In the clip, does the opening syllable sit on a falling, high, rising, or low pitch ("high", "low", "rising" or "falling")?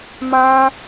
high